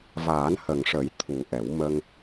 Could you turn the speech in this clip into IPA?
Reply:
v aː˨˩˦ n h ə˨˩ ŋ ʂ ə˨˩˦ j t̪ʰ u˨˩ ʔ ɛ˨˩˦ w m ə˧ ŋ

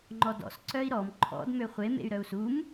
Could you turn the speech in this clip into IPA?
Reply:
ŋ͡ǃ ɔ d ɔ̰ s ǀ œ i̯ ɾ ɔ m ǃʰ ɔ̰ d m ø χʷ e m ḛ y̯ ɾ œ u̯ s u m

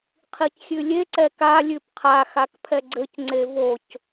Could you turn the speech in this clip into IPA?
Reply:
qʰ i c xʲ ʉ lʲ e ǀ ɛ k a lʲ ʉ p qʰ a x a k pʰ ɛ ɡ͡ǀ ɘ c ŋ͡ǀ e v o c

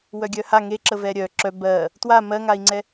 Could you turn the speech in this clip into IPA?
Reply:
w œ ɡʲ œ h a ŋ e ǁ ə v ɛ ɾʲ œ ǁ œ b ɜ | t w a m ɜ ŋ a i̯ ŋ͡ǀ ɛ

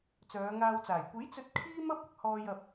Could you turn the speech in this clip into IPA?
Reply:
t͡s œː˨˧ ŋ aː˧ w t͡s aː˨˩ j kʷ e˨˥ j t͡s ɵ˧ t̚ kʰ iː˥ m ɐ˥ p̚ ɐ˨˥ k̚ h ɔː˧ j ɐ˨ p̚

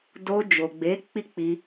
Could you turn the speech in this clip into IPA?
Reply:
d o˧ d͡ʒ o˨ ɡ͡b e˨˦ k͡p i˦ k͡p i˧

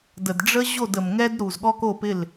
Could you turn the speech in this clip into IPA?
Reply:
d ə˩ d ɖ͡ʐ ə˦ ʑ o˥˩ d ə˩ m ŋ ɛ˦ d ɾ u˩ z ɠ ɔ˦ k o˥˩ p ɪ˥˩ l

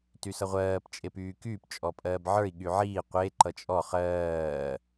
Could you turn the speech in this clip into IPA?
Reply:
t y s ʌ ʁʷ ɜː p t͡ʃʼ e p yː k yː p t͡ʃʼ ɔ pʼ ɜː b ʕ ə˞ i̯ ɠ y ʕ iː qʷ e ǃ ʌ t͡ʃʼ ɔ χ ɜː

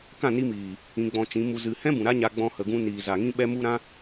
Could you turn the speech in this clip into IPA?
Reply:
k ã˦˨ n i˧ m iː˨ | ĩ˧ ɡ͡b ɔ̃˧ t͡ʃ ĩ˨˦ m u˧ z ɨ˨ h ɛ̃˦ b ũ˨ ɾ a˦ ɲ a˧ ɡ͡b ɔ̃˧ h ə˨ ɡ ũ˧ n iː˨ z a˨ ŋ ĩ˧ ɓ ɛ˧ m u˧ ɾ ã˧

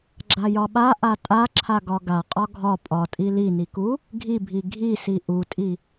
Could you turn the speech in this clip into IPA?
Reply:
ɡ͡ǁ a j ɒ ɓ a ʔ a tʼ a ǁʰ a ɡ ɒ ɡ a qʼ ɒ ɡʱ ɒ pʼ ɒ tʼ i l i n i k u | ɡʱ i bʱ i ɡʱ i s i ʔ u tʼ i

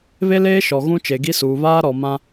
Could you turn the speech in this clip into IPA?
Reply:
β e˦ l eː˦ ʃ ɔ˨ ɣ ũ˦ t͡ʃ e˨ ɡ i˦ s uː˨ β aː˦ ɾ ɔ˨ m ã˦

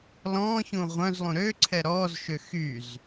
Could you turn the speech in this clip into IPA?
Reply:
l ɔ̃ː ç ũ ʁʷ œ̃ z lˠ ũ ɾ ø ǀʰ ɛ ɾ ɔː z ʃ ø x y z

